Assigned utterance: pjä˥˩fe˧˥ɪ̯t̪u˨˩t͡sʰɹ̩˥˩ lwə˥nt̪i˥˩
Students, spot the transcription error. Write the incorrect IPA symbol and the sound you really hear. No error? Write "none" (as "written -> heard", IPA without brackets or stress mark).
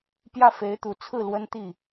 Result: none